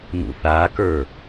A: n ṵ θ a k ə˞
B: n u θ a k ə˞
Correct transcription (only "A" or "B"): A